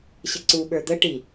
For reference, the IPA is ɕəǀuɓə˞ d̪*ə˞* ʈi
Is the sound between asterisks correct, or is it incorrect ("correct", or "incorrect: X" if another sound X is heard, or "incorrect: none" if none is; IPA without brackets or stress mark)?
incorrect: ə